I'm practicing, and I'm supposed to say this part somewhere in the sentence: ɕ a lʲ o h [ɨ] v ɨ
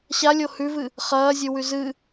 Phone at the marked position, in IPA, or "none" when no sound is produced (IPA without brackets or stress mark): ʉ